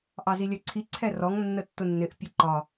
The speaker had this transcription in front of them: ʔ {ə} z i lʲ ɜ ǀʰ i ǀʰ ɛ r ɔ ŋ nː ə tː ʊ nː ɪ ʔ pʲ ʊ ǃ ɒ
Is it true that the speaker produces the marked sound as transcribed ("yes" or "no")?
no